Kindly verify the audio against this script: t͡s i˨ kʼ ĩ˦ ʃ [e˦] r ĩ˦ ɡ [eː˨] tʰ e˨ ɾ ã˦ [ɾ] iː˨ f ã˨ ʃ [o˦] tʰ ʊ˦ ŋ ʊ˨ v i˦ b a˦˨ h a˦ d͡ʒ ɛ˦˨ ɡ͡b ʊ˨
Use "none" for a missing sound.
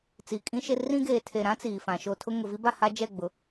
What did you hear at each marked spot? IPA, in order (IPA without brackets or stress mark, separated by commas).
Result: e˦, eː˨, t͡s, o˦